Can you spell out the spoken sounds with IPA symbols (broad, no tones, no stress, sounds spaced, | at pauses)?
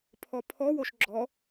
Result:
pʰ ɔ pʰ ɔ w o ʃ ɡ͡ǁ ɔ